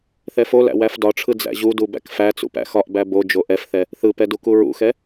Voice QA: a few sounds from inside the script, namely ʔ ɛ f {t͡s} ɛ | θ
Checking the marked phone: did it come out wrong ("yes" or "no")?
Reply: yes